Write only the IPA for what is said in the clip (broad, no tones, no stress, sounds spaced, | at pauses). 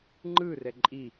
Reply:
ŋ͡ǃ ɯ r ɛ ǃʼ i